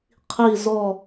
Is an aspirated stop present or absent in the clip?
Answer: present